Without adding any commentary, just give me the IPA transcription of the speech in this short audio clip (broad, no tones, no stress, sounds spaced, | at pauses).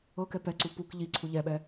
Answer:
ɤ k ɛ p ɛ ǀ u p u k ʎ i ǀʰ u ʎ ɛ ɓ ɛ